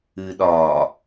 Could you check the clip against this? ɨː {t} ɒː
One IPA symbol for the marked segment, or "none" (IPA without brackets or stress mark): ɗ